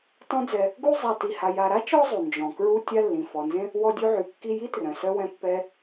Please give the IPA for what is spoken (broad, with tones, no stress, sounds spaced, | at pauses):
t ɔ̃˦ d͡z ɛ˨ | ɡ u˦ zˤ a˨ t i˨ h a˨ j a˨ ɾ a˥ t͡ʃ ɔ˦ zˤ u˩ n d͡ʒ ɔ̃˩ k ɹ u˦ tʲ a˦ lː ĩ˩ f ɔ˩ n z ẽ˥ | w ɔ˦ dʲ u˦ ʕ y˨ kː i˦ j i˥ t r œ̃˩ s œ˦ w ɛ̃˦ pː ɛ˦